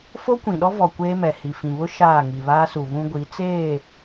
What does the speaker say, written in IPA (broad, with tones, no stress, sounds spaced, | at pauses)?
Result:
f o˦ kʷ ĩ˨ ɗ ɔ˦ v ɔ˨ kʷ eː˦ m ɛ˨ h i˨ f ĩ˨ β ʊ˦ ʃ aː˦˨ ŋ i˨ β aː˦ s u˨ β ũ˦ ɡʷ i˨˦ t͡s eː˦˨